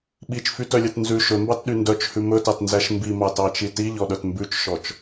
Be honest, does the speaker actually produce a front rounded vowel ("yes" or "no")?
yes